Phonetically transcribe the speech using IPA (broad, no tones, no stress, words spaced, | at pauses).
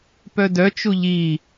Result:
pœdœ t͡ʃuʎi